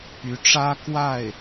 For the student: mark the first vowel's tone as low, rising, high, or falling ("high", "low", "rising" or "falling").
rising